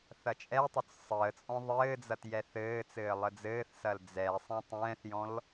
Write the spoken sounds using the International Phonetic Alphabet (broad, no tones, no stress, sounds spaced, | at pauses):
θ ɐ t͡ʃʼ ɛ tˤ ʏ t͡s sˤ əː t͡sʼ ɔ̃ ðˤ ɘː d͡z ɐ t j ɛ θ ɘː t͡s ɘː lˠ ə d͡z ɘː θ s ɐ l d͡z ɛ sˤ ɛ̃ tˤ ɛ̃ː θ j ɔ̃ l